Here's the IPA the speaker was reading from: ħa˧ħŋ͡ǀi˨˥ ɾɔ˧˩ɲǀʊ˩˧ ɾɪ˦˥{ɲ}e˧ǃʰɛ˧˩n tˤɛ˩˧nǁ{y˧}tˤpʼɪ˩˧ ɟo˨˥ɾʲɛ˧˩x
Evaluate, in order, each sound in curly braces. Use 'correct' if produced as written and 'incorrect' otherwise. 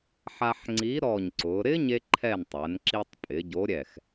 correct, incorrect

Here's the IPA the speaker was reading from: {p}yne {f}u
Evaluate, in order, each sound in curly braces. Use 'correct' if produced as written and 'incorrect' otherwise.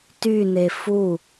incorrect, correct

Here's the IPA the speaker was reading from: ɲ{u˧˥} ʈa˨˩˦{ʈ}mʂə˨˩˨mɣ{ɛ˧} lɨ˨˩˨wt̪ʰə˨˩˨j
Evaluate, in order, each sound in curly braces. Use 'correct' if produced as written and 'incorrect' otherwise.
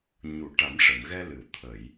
incorrect, incorrect, correct

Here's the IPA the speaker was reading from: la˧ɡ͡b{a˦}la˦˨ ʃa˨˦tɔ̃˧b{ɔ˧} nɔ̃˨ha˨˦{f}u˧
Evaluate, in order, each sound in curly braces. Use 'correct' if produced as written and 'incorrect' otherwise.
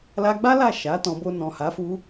correct, incorrect, correct

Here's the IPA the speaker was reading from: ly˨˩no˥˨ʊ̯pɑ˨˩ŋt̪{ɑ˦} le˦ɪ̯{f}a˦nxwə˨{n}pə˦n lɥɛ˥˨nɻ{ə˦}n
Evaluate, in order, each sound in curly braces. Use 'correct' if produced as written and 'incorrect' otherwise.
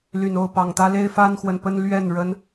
incorrect, correct, correct, correct

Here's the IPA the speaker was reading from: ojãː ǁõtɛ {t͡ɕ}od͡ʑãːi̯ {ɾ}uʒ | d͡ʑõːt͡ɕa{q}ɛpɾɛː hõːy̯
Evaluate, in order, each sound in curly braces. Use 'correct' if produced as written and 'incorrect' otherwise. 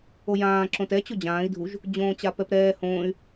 correct, incorrect, incorrect

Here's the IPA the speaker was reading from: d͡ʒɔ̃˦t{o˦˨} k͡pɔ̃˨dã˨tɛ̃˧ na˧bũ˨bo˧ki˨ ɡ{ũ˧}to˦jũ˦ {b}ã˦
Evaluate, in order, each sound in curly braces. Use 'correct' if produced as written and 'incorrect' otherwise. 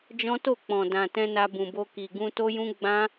correct, correct, incorrect

